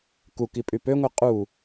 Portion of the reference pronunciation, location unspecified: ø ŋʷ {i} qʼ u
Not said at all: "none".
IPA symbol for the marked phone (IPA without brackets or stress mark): e